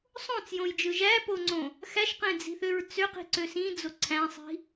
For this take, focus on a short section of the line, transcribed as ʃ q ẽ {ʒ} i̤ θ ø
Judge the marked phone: incorrect: d͡z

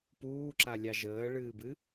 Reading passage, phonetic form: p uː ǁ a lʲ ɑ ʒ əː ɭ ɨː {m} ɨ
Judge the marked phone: incorrect: b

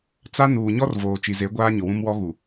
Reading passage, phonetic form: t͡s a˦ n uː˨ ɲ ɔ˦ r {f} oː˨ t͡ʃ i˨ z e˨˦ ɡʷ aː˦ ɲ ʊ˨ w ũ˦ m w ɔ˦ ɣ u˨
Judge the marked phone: incorrect: v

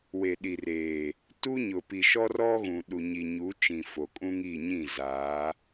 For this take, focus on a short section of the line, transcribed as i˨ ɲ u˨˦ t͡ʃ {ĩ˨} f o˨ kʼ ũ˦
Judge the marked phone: correct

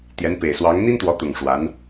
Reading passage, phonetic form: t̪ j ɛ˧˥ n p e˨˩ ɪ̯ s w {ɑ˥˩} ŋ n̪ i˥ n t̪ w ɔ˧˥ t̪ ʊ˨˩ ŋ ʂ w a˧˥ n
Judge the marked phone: incorrect: ɑ˧˥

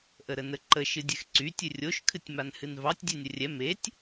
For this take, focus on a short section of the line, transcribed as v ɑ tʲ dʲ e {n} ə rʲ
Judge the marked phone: incorrect: nʲ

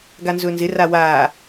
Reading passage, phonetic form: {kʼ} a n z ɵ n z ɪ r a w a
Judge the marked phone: incorrect: ɡ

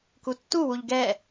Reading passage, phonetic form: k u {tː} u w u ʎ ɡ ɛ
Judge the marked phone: correct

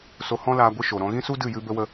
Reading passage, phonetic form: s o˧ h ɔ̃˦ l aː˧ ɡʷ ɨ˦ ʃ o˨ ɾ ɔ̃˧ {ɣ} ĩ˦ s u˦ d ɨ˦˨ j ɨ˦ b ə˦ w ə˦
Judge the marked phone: correct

